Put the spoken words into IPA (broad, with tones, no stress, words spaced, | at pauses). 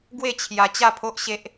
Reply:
ɡwe˥˧ t͡ɕʰja˧t͡ɕa˥˧pʰo˦ʔɕe˦ʔ